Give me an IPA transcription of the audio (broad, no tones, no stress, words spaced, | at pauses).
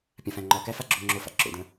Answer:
pʲãfæ̃ŋ͡ǃɒkæ faɡ͡ǁoŋ͡ǁofa̰ ǁo̰də̃